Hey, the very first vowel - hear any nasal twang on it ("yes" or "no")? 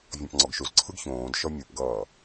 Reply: yes